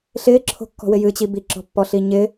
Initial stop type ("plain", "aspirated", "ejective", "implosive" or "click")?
click